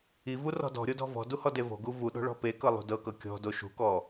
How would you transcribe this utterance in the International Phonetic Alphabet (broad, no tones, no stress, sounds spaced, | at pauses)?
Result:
i v u r ɔ̤ d ɔ̤ ɾʲ o d ɔ̤ v ɔ̤ d u h ɔ d e v o̤ ɡ u v u ɗ o̤ ɭ ɔ̤ p e k ɤ lˠ ṳ d ɤ k ɤ kʲ ɔ̤ d o ʃ ṳ k ɔ